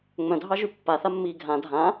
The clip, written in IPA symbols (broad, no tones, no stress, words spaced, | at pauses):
ŋ͡mœ̃dʱɑʒy pːaθamːiː ɡʱã dʱã